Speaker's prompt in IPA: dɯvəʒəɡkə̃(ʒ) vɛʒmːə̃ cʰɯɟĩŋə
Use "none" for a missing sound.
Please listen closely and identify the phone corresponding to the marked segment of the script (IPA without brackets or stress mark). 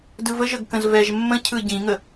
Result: z